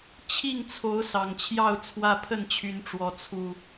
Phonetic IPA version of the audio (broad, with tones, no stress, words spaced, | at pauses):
t͡ɕʰi˥˨ŋt͡sʰo˨˦ʊ̯ sɑ˨˩ŋt͡ɕʰjɑ˥˨ʊ̯ t͡sʰwä˦pʰə˥˨nt͡ɕʰy˨˦nʈ͡ʂwɔ˨˦ t͡sʰu˨˩